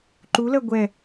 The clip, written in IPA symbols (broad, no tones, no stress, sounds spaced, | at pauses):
ǃ u l ɜ ɡʷ ɛ